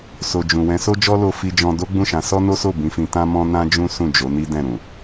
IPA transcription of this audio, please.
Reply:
s o˨ d͡ʒ ũ˨ w ɛ̃˨˦ s o˦ d͡ʒ ɔ˦ l o˧ f i˧ d͡ʒ ɔ̃˧ d o˦ ɡ͡b ũ˦˨ ʃ ã˨˦ s ɔ˦ n o˦ s o˦˨ b ĩ˧ f ĩ˧ t ã˦ m ɔ̃˦ n ã˦ d͡ʒ ũ˦ s ũ˦˨ d͡ʒ o˨˦ n i˦ d ɛ̃˦˨ ɾ ũ˨

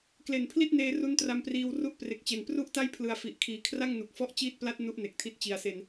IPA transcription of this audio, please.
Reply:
k l e˨˩ n pʰ l i˥˩ t̚ n eː˧ r u˦˥ n t r a˧ m p r iː˧ w r u˦˥ ʔ p r e˨˩ k̚ t͡ɕ e˨˩ n p r u˥˩ ʔ t a˥˩ j pʰ l ɯ˨˩ a̯ f i˨˩ ʔ kʰ iː˨˩ kʰ r a˥˩ ŋ n u˨˩ k̚ f ɔ˦˥ ʔ t͡ɕ iː˥˩ t̚ p l a˥˩ t̚ n u˥˩ ʔ n e˨˩ k̚ tʰ i˦˥ t̚ t͡ɕ i˨˩ a̯ s e˧ n

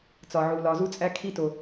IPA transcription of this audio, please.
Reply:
t͡s ɒ˨ ʕ u˨ l ɒ˨ z u˧ t͡sʼ æ˧ kʰ i˧ t o˨

